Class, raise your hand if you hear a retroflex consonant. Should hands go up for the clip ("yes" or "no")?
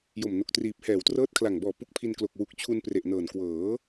no